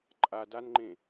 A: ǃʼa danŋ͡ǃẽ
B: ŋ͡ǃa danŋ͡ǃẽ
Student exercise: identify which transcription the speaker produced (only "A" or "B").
A